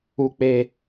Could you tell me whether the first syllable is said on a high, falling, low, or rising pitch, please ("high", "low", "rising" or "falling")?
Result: high